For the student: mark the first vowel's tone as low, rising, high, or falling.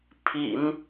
low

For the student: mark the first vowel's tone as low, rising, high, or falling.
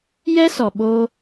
high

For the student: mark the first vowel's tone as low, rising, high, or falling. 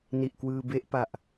low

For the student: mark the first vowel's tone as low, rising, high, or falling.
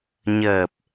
low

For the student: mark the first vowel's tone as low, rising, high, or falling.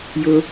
high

